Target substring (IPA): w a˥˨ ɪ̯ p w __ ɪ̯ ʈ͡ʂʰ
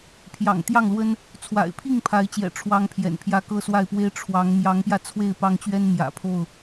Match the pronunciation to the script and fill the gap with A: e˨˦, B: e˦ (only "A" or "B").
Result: B